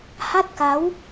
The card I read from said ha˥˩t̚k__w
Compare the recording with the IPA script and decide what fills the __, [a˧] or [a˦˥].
a˦˥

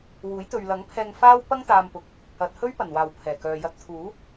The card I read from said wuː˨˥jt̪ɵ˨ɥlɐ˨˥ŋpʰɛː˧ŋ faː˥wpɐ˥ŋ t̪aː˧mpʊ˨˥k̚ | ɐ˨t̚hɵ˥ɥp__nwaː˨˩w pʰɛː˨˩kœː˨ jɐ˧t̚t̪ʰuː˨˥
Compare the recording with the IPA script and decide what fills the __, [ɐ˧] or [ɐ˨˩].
ɐ˨˩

